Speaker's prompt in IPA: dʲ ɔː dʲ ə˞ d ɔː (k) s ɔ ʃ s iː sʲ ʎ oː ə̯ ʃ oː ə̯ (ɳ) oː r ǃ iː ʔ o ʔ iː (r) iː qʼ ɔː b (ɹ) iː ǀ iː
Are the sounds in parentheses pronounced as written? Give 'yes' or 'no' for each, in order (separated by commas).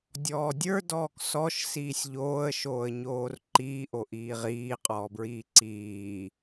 yes, no, no, yes